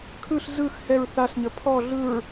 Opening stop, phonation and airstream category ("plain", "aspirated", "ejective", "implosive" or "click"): aspirated